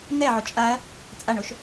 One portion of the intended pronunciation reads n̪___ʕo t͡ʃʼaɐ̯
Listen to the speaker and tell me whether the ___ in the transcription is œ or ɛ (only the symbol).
ɛ